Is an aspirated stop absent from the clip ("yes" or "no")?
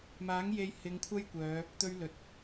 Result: no